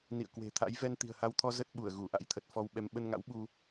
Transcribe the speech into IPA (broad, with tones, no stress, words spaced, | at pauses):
nḭ˧˨ə̯kwe̤˨˩t̪ʰa̰˧˥j vɛ˧nt̪i̤˨˩ə̯ha˧wt̪ʰɔ˧ zə˦˥t̚ɓu˧˩ə̯ ɣu˧˩ʔa̰˧˥jt̪ʰə˨˩t̚ fɔ˧wɓɛ˧m ɓə˧nŋa̰˧˥wɓu˧